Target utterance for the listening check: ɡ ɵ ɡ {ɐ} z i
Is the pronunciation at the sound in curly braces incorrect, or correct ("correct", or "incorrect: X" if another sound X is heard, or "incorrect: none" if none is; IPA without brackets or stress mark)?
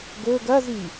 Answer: correct